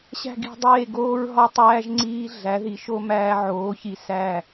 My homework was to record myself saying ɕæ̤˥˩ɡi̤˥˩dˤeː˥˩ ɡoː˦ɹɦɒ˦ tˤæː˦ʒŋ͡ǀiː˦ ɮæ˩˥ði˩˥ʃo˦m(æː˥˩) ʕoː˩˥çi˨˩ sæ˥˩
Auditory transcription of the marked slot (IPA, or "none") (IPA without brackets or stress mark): æː˦